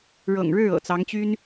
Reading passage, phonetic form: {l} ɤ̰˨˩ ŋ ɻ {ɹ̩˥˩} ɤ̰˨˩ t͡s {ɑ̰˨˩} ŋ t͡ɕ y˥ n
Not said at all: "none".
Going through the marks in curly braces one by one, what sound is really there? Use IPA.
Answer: ɻ, ɻ̩˥˩, ɑ˧˥

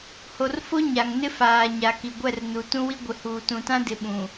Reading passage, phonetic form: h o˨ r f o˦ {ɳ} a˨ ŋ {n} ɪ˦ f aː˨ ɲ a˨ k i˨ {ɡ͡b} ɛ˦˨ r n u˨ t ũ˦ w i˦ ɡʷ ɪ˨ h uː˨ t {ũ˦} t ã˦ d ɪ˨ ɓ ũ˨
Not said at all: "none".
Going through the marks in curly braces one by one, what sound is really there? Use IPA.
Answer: ɲ, n, ɡʷ, ũ˨

